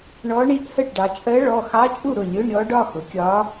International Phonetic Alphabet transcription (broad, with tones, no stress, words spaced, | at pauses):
ɳɔ˧˥ɳi˧˥ʔhə˥˩ʈɖɑ˩˧ t͡ʃʼɜ˧˥ɭɔ˩˧˩ xɑ˧˥t͡ʃʼu˥˩ ɾʊ˥˩ lʲʊ˧˥˧ɳɾʲɔ˧˥ɖ ɒ˩˧˩xʊ˩˧kʲɒ˧˥